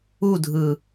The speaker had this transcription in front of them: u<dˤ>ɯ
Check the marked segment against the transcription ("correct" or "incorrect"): incorrect